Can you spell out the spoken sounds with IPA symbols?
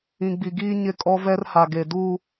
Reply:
ĩ˨ ɡ͡b i˨ ɡ iː˦ ɲ ɪ˦ kʼ ɔ˦ v ɛ˦ r h a˨ ɡ e˨ d u˦

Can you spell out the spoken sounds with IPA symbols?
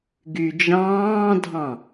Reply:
ɡ y d͡ʒ ɑ̃ː dʱ ɑ̃

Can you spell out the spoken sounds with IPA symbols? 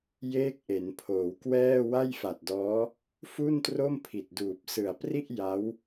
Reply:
j eː˥˩ k̚ ʔ e˩˦ n pʰ oː˩˦ w k w ɛː˥˩ w a˥˩ j f a˨˩ t̚ d ɔː˦˥ | f u˥˩ n t r o˥˩ m pʰ i˨˩ t̚ d uː˨˩ p̚ s ɯ˨˩ a̯ p r i˥˩ ʔ j a˦˥ w

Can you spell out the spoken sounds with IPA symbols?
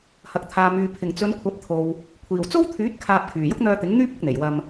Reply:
h ɐ˨ k̚ t̪ʰ aː˨ m yː˨ pʰ ɪ˨˩ ŋ t͡s ɵ˨˧ n kʷʰ ɐ˨˥ p̚ t̪ʰ o˨ w | kʷʰ iː˨˩ w t͡s o˥ w t̪ʰ yː˨˥ t̚ kʰ aː˧ p̚ kʰ yː˨˩ j ʊ˥ k̚ n̪ œː˧ t̪ ɪ˨˥ ŋ n̪ yː˥ p̚ ʊ˨˥ k̚ n̪ e˨˩ j w ɐ˧ m

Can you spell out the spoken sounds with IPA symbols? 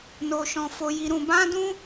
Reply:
n o˧ ʃ ɔ̃˧ f o˧ j i˧ ɾ ũ˧ b ã˦ d ũ˦

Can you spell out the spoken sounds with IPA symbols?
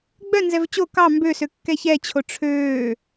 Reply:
ɡ͡b œ n z ɛ v t͡ɕ o k ɑ m b ø s ø kː ɛ ç ɛ t͡ɕʰ o ʈ͡ʂʰ øː

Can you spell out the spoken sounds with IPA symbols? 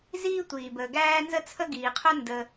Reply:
z iː˥ tʷ iː˩ b əː˩ ɡ æː˥ n z ə˥ t͡sʰ ə˥ ɡ iː˩ qʰ œ˥ n d əː˩

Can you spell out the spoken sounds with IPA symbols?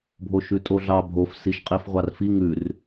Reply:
bʱ o ʃ ʉ tʼ o ɮ ɑ bʱ o f s i ʃ qʼ i f ʁʷ ɑ r f i ŋ ʉ r

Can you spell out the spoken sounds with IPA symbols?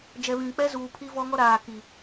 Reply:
d͡ʒ ɛ˨ β ĩ˨ k͡p ɛ˦ z uː˨ pʰ i˦ v ɔ˦ ŋ ɔ˦ ɾ aː˨ k i˨

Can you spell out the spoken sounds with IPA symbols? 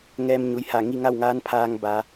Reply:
ŋ ɛː˧ m ɲ u˩˧ j h a˧˩ ŋ i˥˨ ŋ a˥˨ w ŋ aː˧˥ n pʰ aː˧ ŋ b a˩˧

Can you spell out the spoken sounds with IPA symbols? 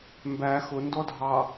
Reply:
m b æ x ʊ n d ɔ dʱ ɑ

